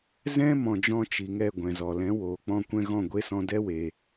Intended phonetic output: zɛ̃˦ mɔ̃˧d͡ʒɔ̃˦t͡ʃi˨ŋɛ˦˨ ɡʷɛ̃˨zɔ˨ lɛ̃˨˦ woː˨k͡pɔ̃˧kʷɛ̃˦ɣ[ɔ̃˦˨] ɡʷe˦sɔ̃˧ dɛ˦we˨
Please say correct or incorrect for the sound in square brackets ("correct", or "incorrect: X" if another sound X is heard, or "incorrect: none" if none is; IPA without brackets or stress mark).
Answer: correct